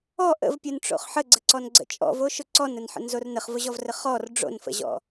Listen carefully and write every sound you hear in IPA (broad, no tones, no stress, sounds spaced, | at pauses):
ɔ ʔ ə̰ v pʲ o n ʈ͡ʂ o̰ χ ħ ə ɡ͡ǀ ə ǀ ɔ n ɡ͡ǀ ə̰ t͡ʃʼ ɔ̰ v o ʃ ʊ ǀ ɔ n ə n ħ ə̰ n z o r n ə χ v ʊ ʑ ɔ v r ə χ ɔ r ɖ͡ʐ o̰ n f ə̰ ʑ ɔ̰